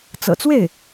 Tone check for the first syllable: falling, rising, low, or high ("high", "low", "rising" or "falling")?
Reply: low